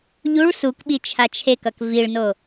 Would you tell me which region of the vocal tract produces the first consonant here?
palate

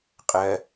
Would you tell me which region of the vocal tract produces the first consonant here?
uvula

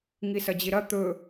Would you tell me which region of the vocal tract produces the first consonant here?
velum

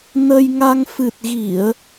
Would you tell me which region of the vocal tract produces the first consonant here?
tongue tip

